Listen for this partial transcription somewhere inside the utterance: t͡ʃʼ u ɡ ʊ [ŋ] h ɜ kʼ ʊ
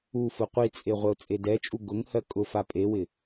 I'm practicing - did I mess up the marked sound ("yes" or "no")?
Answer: no